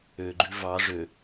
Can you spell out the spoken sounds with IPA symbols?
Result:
ø ɡ͡ǃ ʉ v ɑ ʐ ø

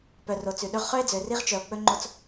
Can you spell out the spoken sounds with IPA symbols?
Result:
p œ˨ r o˨ t͡s ʉ˨ ɗ ɵ˦ ʁ χ œ˦ e̯ d͡z ø˨ r i˦ ʁ t͡ʃ œ˨ o̯ k͡p ɵ˦ ŋ͡ǃ o˦ t͡s

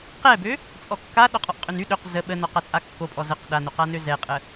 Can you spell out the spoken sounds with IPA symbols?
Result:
q ɛ b ø | t͡sʼ ɔ kː a ɗ ɔ qʼ ɔ ʔ qʼ ø n y ɗ ø q z ə ɓ ə n ɔ q a t͡sʼ a kː o pʼ ɔ z ə q ɗ a n o q a n ø z ɛ qʼ ə

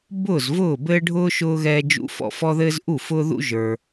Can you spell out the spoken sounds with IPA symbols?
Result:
b ʊː˥˨ z v ʊː˥˨ b ɘː˥ ɖʱ ʊː˥ ʃ ʊː˥ ɣ ɛː˥ d͡ʒ ṵ˥ f ɔ̰˥˨ f ɔ˥ ð ɘː˥ z ʔ u˥˨ f ʊː˥ ð ṵ˥ ʒ ə˞˥

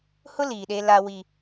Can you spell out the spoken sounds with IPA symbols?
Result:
h ʊ˦ l iː˨ ɗ e˦ l a˦ w i˦

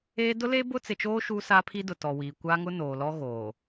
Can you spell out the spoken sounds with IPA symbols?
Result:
eː˦ d ʊ˦ l eː˦ b ʊ˦ t͡s ɪ˨ t͡ʃ oː˦ ʃ uː˦ s aː˦ pʰ i˦ d ʊ˨ t ɔ˨ w i˨ kʷ a˦ ŋ ʊ˦ n oː˨ l ɔ˦ ɣ oː˨

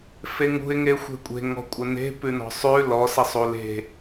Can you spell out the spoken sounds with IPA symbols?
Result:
f e ŋ ṳ ɪ̯ ŋ e xʷ e̤ kʷʼ e̤ ŋ ɔ̤ kʷʼ ɘ n e̤ p ʉ n ɔ̤ sˤ ʉ l ɔ s ɘ sˤ u l e̤

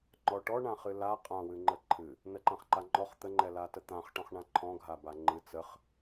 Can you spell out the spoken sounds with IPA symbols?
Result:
ŋ͡ǃ ɔ ʈ ɔ ɳ ã χ ɨ l a qʼ ã w ɨ ŋ͡ǃ ə ǃʰ ɨ | n ə ǃ ã χ ǃ a ŋ͡ǃ ɔ χ t̪ ə ŋ͡ǃ ɛ l a t ə t̪ ã χ ʈ ɔ̃ χ ɳ ã ǃʰ ɔ̃ ɡʱ a b a ŋ͡ǃ ɨ t͡s ə χ

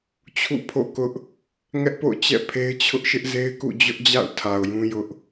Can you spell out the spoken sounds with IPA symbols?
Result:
t͡ɕʰ ṵ˦˨ pʰ o̰˦˨ k ʊ˦ ʔ | ŋ ɛ˦ ʔ p o̰˦˨ ʊ̯ t͡ɕ ɛ̰˦˨ pʰ e˦ ɪ̯ t͡ɕʰ ʊ˦ ʔ ʃ ɪ˦ ʔ z e˦ ɪ̯ k ṵ˦˨ d͡ʑ ʊ˦ ʔ d͡ʑ a̰˦˨ ʊ̯ tʰ a˨ ʊ̯ j ũ˦ j ʊ˦ ʔ

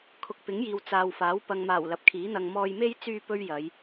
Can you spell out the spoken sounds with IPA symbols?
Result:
kʰ ʊ˨ k̚ p ɪ˨˥ ŋ j iː˨ w t͡s aː˨ w f aː˨˥ w p ɐ˨ ŋ m aː˨˩ w l ɐ˨˥ p̚ kʰ iː˨˥ n̪ ɐ˧ ŋ m ɔː˧ j m e˥ j t͡s yː˥ p ɵ˥ ɥ j ɐ˨˧ j

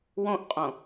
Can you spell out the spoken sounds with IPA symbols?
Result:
w õ ʔ qʼ õ

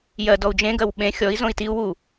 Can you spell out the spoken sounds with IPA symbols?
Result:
j ɜ d ɔ u̯ d͡ʒ ẽ ɡ ɜ w ɓ ẽ xʲ ɔ i̯ z õ i̯ t i u̯ w u

